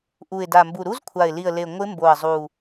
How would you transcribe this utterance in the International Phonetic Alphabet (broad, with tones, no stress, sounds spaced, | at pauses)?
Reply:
ʔ u˨˩ ɪ̯ d a˨˩ m b u˨˩ ɾ u˦˥ z kʷʰ a˨˩ ɪ̯ l i˨˩ ə̯ l e˨˩ ŋʷ ɪ˦˥ m b o˨˩ ə̯ zˤ u˨˩